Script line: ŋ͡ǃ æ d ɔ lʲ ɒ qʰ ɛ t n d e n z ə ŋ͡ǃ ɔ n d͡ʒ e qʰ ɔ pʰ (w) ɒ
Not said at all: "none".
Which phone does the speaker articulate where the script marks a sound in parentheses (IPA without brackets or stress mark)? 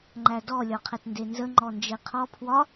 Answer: w